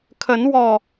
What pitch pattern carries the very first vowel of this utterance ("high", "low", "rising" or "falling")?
rising